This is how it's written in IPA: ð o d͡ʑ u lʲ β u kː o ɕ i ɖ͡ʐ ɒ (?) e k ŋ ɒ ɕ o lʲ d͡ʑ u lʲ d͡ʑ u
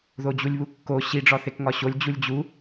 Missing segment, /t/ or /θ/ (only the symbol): θ